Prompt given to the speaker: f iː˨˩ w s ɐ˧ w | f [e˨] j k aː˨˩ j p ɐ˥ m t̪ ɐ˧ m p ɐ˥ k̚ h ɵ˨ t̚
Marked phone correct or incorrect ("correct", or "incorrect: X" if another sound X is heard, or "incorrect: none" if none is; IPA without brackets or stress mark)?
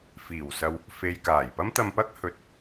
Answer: correct